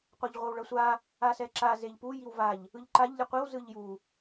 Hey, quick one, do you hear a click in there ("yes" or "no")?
yes